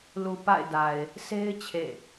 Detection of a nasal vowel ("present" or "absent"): absent